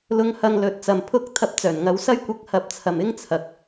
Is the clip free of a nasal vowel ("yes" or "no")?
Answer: yes